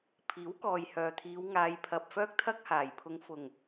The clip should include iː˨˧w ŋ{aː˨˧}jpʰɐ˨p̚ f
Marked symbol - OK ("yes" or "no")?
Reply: yes